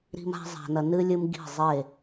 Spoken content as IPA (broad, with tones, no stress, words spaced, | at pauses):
ɾi̤˦ma̤˦ zˤa̤˧nɐ˧ nɨ˦ lʲɨ˦m ɡi̤˦˨ zˤe˦˨